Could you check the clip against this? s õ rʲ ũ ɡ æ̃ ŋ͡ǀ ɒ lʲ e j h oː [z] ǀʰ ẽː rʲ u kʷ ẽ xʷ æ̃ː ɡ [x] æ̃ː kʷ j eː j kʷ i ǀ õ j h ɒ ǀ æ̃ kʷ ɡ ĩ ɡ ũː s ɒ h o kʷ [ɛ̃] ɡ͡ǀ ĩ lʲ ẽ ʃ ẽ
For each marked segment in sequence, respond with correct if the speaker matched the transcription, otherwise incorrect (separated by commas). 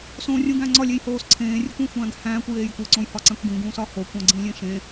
incorrect, incorrect, incorrect